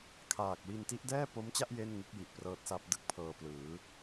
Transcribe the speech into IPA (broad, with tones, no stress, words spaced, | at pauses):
kʰaː˨˩k̚wi˧n ti˦˥ʔdɛː˥˩po˦˥mt͡ɕa˥˩ʔ je˥˩nŋɯ˦˥k̚ ji˨˩ʔprɤː˦˥t̚sa˦˥p̚ dɯ˦˥k̚pʰɤː˧plɯː˩˦